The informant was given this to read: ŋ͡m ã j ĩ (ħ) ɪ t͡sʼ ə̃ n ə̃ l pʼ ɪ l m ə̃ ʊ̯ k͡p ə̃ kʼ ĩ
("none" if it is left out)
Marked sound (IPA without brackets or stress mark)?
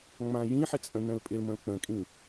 ħ